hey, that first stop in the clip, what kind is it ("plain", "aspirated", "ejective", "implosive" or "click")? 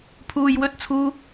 aspirated